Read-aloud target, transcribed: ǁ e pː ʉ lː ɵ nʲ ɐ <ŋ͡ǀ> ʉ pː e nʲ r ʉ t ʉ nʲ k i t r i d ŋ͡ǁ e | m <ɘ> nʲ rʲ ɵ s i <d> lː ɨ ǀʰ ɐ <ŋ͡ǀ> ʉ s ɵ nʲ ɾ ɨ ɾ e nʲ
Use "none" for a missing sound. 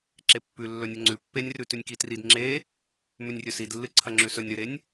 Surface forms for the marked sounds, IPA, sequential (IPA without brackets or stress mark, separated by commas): ŋ͡ǀ, ʉ, d, ŋ͡ǁ